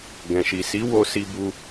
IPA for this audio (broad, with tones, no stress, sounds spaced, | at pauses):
ɡ ɛ̃˨ ʃ i˨ s i˨˦ w o˧ s i˧ b u˧